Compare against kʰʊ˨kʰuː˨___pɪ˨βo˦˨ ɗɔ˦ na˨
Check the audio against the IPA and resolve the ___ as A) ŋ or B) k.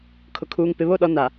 A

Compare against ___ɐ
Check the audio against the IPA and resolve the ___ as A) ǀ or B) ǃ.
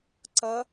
A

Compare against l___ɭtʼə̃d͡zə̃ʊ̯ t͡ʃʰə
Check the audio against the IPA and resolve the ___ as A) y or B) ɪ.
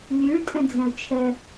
A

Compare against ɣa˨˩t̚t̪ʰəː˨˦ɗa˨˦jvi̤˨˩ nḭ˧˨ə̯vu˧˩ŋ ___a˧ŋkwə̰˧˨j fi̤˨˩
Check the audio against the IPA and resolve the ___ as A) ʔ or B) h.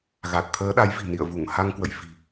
B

